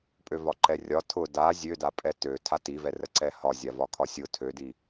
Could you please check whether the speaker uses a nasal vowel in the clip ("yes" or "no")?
no